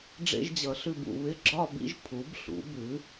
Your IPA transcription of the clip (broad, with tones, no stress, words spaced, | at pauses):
ɖ͡ʐḛ˧ʒd͡ʑʌ˩˧ɬʉ˧˩b ṵ˧˩βɪ˥˧ɡ͡ǁɒ˥˧bḭ˥ʒ pʰu˩˧bɬṵ˩˧bʉ˩˧